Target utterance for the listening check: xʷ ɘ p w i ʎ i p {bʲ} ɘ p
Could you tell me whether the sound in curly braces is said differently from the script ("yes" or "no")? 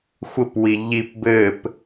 yes